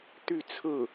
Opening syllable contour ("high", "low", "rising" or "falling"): falling